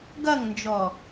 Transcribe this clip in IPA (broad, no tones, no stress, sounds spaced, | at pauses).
ɡ ɐ ŋ n d͡ʒ ɔ